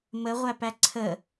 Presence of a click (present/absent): present